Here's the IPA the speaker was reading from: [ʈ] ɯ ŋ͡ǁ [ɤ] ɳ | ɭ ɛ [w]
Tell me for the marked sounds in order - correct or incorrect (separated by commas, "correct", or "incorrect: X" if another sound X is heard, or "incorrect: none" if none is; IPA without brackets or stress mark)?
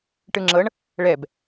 correct, correct, incorrect: b